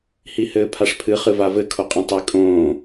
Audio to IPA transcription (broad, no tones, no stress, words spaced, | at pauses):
hihɘːpʰaʂpʰɨ χɨvavɘ kʰoqʼĩtˤi kʼõː